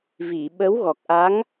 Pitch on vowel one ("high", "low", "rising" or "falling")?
low